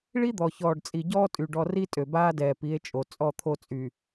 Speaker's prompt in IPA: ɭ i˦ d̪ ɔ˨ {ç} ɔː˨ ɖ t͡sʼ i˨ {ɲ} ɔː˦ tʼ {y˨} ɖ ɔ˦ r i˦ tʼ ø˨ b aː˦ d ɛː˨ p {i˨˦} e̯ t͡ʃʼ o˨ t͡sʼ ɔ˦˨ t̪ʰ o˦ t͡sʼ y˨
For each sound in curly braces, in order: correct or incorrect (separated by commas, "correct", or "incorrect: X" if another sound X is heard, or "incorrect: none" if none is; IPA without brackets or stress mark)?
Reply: correct, incorrect: ɟ, correct, correct